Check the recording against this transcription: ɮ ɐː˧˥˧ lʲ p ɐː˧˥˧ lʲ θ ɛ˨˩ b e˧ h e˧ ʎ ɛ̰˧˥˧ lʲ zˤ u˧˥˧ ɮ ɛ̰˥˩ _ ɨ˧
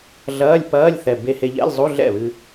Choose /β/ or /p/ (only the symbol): β